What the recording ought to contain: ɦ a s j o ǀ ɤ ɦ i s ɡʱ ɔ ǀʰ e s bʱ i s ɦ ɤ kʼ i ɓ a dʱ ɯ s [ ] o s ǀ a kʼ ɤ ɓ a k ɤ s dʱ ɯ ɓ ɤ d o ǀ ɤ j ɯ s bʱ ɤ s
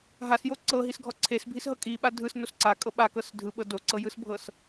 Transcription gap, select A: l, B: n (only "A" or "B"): B